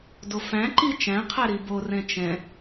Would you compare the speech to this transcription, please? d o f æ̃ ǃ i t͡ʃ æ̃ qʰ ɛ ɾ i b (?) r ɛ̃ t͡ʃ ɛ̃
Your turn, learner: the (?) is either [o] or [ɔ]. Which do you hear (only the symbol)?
o